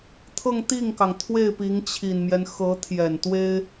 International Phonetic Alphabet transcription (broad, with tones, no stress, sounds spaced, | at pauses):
t̪ʰ ɤ˥˧ ŋ t̪ i˥˩ ŋ k ɑ˩ ŋ t̪ʰ w e˥˩ ɪ̯ p i˧˥ ŋ t͡ɕʰ i˨˩ n m j ɛ˦ n x ɤ˧˥ t̪ʰ j ɛ˨˩ n t̪ w e˥ ɪ̯